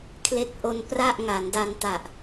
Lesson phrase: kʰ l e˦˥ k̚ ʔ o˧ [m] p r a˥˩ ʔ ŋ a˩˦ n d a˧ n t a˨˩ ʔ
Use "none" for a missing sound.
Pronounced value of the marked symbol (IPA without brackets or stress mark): n